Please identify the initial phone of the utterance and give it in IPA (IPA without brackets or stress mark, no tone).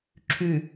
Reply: ǁʰ